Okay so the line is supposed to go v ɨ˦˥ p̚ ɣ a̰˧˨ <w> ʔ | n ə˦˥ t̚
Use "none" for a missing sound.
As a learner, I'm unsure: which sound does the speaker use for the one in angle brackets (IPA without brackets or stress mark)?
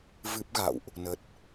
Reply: w